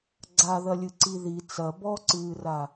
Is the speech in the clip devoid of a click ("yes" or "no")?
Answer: no